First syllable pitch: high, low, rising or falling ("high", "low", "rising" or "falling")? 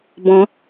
rising